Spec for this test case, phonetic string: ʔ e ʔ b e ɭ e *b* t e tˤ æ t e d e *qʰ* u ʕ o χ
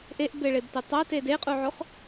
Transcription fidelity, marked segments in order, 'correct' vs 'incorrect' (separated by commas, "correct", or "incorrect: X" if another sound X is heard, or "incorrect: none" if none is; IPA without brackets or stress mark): correct, incorrect: qʼ